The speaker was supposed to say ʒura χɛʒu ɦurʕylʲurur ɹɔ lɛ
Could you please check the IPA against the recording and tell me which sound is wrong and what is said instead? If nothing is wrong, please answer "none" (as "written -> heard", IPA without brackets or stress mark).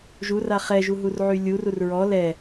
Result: none